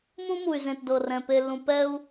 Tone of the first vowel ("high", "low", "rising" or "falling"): high